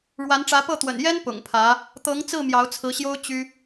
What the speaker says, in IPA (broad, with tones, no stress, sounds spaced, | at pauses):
ɻ w a˧˥ n ʈ͡ʂ ä˧˥ p ɤ˥˩ t̪ w ə̰˨˩ n j ɛ˥ n p ʊ̰˨˩ ŋ pʰ ä˧˥ | t̪ ɤ˧˥ ŋ t͡s ɹ̩˥˩ m j ɑ˧˥ ʊ̯ t͡sʰ ɹ̩˧˥ ɕ j o˥ ʊ̯ t͡ɕ y˥